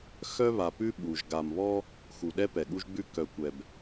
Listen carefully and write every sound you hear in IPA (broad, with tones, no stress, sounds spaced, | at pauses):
x œ˦ β a˨ p ʉ˦ ɓ u˨ ʒ ɡ a˨ m β ɔ˦ | x u˨ ɗ ɛ˦ p ɛ˨ ɠ u˦ ʒ ɡ͡b ʉ˦ k œ˨ kʷ ɛ˨ b